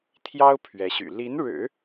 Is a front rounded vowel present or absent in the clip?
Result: present